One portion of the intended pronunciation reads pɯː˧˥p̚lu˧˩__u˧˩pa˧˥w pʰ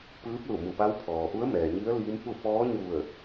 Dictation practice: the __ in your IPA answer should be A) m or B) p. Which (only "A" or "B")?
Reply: A